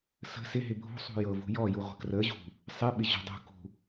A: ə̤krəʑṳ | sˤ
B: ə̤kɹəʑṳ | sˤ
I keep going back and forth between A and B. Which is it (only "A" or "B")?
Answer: A